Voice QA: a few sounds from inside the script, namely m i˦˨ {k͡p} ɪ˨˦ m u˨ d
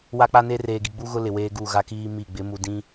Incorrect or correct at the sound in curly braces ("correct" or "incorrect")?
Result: incorrect